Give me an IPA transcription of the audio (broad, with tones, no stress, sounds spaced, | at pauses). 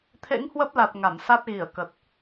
t̪ʰ ḛ˧˥ ŋ h w ə˦˥ p̚ l a˨˩ t̚ ŋ a˧˩ m s a˦˥ t̚ ɣ i˧˩ ə̯ k ə˨˩ t̚